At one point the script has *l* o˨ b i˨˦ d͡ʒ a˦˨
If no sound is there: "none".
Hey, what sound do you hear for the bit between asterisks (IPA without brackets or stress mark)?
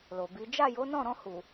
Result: l